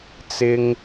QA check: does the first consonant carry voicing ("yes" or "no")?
no